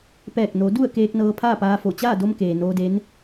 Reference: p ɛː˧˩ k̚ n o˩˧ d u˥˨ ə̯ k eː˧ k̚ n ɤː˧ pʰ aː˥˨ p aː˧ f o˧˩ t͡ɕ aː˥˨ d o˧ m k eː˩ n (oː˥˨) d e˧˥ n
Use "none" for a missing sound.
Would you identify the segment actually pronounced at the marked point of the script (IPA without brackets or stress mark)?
oː˧